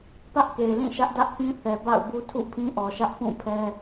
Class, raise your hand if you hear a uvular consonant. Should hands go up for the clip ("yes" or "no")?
no